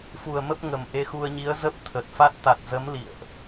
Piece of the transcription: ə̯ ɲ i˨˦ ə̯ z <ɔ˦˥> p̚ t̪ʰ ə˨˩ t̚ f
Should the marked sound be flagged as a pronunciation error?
yes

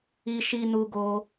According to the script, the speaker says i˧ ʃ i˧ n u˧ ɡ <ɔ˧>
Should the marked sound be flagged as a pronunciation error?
yes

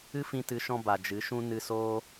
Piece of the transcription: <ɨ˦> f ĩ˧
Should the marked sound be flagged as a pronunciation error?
no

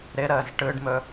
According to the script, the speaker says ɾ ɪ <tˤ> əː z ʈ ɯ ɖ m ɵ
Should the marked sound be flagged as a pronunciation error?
yes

